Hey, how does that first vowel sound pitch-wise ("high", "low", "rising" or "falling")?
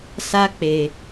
high